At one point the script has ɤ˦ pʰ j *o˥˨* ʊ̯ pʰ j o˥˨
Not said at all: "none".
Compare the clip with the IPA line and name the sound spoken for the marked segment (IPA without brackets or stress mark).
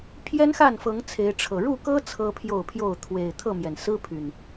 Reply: o˥˨